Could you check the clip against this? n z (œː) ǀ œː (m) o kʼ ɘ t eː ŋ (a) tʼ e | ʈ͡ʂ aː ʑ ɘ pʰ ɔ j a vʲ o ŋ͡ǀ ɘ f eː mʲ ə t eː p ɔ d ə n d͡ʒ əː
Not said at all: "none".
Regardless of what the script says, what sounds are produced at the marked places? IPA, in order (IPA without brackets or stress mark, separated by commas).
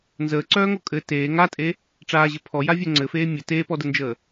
əː, ŋ, a